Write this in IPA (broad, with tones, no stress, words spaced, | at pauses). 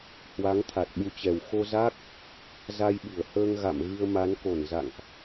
hwa˨˦ŋt̪ʰa˨˩t̚ɓu˨˦t͡ɕɛ˨˩w xo˧za˦˥k̚ | za˧jɓɨ˧˩ə̯ həː˧ŋ ɣa̰˧˨mɣɨ˧ə̯ma˨˦n ko˧˩nza̰˧˨ŋʔ